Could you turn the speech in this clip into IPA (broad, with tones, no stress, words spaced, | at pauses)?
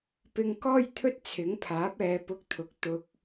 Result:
pɪ˧ŋkɔː˥j t̪ʰɵ˥t̚t͡sʰɪ˨˥ŋpʰaː˨˥p̚ɛː˨˧ pʊ˧k̚t̪ʰʊ˨k̚ t̪ʊ˨k̚